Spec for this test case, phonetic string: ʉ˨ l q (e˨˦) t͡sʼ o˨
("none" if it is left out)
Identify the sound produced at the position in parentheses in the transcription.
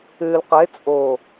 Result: e˨˦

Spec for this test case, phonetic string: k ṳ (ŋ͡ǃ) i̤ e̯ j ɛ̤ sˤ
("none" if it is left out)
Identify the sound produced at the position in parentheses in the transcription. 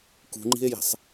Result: ŋ͡ǃ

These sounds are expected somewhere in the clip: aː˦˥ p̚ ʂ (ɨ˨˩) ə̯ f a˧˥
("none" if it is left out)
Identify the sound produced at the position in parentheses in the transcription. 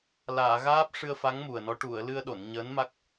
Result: ɨ˧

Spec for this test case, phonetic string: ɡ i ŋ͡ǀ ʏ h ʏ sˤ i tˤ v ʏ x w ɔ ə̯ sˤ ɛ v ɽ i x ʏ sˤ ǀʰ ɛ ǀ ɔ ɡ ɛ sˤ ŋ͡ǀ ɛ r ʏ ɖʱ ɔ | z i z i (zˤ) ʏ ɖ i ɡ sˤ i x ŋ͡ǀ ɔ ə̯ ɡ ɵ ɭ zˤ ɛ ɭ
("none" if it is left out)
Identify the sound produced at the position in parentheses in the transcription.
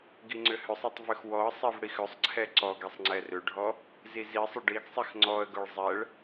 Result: sˤ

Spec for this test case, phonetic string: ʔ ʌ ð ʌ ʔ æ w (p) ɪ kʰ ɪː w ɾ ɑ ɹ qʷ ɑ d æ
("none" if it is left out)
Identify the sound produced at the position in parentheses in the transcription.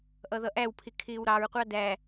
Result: pʰ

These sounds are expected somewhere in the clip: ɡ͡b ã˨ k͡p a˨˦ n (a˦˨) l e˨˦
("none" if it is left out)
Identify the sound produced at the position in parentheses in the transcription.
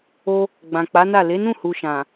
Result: a˦˨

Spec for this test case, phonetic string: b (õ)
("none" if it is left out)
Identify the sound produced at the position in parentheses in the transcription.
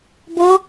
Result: o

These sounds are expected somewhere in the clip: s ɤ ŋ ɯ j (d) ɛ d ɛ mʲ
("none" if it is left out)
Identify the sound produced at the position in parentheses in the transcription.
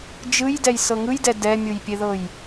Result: d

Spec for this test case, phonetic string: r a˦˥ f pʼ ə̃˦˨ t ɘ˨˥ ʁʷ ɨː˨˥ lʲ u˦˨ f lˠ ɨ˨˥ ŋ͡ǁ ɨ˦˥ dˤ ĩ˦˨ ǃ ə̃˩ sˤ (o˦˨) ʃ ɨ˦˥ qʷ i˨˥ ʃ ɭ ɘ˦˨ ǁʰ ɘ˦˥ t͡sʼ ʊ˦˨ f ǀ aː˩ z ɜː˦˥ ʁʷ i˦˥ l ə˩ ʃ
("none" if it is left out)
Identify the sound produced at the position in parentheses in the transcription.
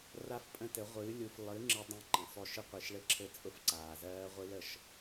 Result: o˦˨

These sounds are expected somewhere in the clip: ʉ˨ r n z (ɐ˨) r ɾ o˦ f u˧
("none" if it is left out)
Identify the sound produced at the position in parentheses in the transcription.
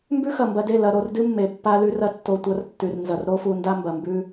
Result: ɐ˨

